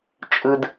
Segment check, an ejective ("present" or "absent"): present